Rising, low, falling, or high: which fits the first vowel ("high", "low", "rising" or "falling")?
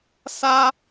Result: high